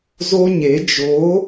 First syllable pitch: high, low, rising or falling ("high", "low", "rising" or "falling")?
high